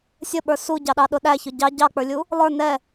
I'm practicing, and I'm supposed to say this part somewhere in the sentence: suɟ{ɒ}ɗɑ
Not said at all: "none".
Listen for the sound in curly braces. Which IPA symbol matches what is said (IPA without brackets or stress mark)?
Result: ɑ